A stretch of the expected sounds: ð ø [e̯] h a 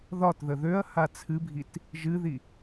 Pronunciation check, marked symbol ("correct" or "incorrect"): incorrect